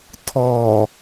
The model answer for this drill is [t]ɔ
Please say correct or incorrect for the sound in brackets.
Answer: incorrect: tʰ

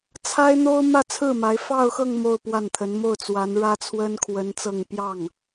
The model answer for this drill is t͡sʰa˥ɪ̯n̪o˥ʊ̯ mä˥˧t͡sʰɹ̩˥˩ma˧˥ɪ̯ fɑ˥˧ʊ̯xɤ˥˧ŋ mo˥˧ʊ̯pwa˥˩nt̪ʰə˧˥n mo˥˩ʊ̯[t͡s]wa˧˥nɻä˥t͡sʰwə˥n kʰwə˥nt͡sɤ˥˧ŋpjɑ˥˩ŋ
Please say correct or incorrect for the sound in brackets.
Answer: correct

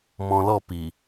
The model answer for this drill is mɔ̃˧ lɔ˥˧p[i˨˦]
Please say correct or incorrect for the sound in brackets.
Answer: incorrect: i˨˩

